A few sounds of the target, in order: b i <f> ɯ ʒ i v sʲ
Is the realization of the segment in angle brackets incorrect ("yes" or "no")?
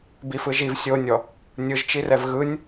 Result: no